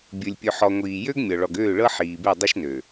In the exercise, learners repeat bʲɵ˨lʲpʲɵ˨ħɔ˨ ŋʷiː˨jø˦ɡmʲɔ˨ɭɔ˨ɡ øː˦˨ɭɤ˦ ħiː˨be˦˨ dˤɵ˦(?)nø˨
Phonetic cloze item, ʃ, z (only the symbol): ʃ